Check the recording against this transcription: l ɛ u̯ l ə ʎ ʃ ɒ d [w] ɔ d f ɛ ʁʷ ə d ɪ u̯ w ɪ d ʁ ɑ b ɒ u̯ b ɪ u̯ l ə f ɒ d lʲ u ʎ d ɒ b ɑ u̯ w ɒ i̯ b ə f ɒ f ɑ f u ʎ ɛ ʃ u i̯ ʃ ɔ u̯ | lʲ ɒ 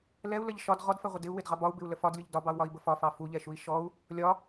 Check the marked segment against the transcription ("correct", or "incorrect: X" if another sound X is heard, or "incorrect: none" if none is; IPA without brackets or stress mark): incorrect: ʁ